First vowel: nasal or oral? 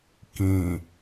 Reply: nasal